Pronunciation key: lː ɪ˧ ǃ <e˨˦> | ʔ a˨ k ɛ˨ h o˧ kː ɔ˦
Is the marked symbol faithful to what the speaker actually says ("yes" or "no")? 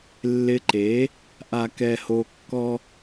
yes